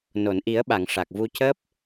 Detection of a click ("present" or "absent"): absent